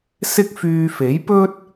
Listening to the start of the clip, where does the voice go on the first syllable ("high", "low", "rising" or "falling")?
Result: high